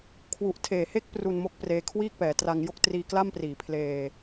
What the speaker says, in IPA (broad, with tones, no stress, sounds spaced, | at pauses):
kʰ w u˨˩ ʔ tʰ eː˨˩ h e˦˥ k̚ p r u˧ n m o˦˥ k̚ p r eː˧ kʰ w iː˥˩ k̚ p ɛː˩˦ t r a˧ ŋ j o˥˩ k̚ t r iː˧ k l a˥˩ m p r iː˩˦ pʰ l eː˧